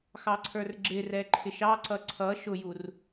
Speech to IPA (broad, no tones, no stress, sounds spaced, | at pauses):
x ɑ ǀʰ ə˞ r ɡ͡ǁ ɪ r ɛ ǃʰ ɪ ʃ ɑ ǀ ʌ ǀʰ ʌ ʃ ʊ j u r